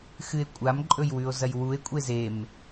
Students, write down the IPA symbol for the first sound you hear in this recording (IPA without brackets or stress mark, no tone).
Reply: x